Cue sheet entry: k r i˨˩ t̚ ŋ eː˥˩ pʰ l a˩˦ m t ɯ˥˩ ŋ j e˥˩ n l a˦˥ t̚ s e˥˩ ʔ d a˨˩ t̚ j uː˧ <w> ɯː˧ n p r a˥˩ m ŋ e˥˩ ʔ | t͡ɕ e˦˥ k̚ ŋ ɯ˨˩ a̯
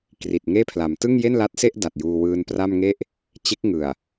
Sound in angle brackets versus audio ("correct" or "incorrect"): correct